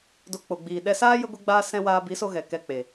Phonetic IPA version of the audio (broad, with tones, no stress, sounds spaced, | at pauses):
d o˧ k͡p o˨ ɡ͡b iː˨ ɗ ɛ˧ s aː˦ j ə˦ ɡʷ e˦ ɡ͡b aː˦ s ɛ̃˧ w aː˧ b i˨˦ s o˧ ɣ ɛ˨ k ɛ˧ k͡p e˨